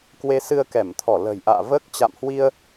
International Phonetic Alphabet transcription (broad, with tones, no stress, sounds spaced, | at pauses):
k w e˧ s ɨ˧ ə̯ k ɛ˧˩ m t̪ʰ ɔ˧˩ l ə̤˨˩ j ʔ a̰ː˧˨ v əː˦˥ k̚ t͡ɕ a̰˧˨ m h w i˧ ə̯